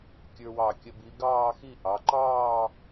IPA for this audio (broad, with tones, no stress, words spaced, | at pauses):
kʲə˞˧wɑ˧˩kʲə˧ bi˩˧ɡɑː˥˧xi˥˧ ʔɑ˩˧ǃɑː˥˧